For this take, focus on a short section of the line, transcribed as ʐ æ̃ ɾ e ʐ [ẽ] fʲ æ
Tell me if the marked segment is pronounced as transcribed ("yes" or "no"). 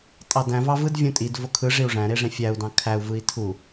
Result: yes